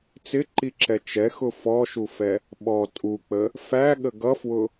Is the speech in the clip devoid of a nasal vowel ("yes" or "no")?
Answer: yes